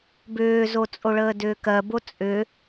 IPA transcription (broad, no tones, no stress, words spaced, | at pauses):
bʏːzot͡sʼoɭəː dʏːkɜbo t͡sʼʏ